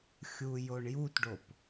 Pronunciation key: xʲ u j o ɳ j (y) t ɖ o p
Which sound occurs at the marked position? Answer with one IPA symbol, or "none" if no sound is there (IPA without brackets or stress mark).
u